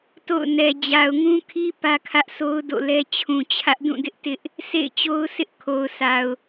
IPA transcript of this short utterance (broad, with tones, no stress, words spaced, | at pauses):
to̰˦˨ʊ̯nɛ˨ d͡ʑa˨ʊ̯ŋũ˦kʰi˦ pä˦kʰä˦ʔso˦ʊ̯ do̰˦˨lɛ˦ t͡ɕʰũ˨t͡ɕʰä˦ʔ dũ˦˨dɪ˦ʔ tɪ˦ʔ | sʰḛ˦˨ɪ̯t͡ɕo˦ʊ̯sɪ˦ʔ kʰo˨ʊ̯sʰa˨ʊ̯